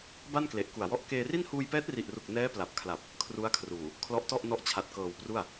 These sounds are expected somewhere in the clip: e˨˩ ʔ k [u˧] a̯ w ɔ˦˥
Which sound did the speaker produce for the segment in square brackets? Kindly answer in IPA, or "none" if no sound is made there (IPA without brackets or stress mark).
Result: u˨˩